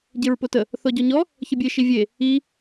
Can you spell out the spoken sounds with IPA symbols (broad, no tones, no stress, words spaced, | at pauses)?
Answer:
ɟeɹpotə | θɔɟɔɲɔ | çəbʲe ʃivʲe | i